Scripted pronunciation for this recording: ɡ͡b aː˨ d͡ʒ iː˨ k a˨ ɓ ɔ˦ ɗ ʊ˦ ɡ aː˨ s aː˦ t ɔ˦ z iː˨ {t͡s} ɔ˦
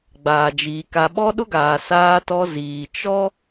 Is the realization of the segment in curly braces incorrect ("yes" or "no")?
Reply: yes